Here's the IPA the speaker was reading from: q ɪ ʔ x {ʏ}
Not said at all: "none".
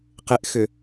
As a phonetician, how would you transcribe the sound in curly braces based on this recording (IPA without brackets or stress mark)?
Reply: ʏ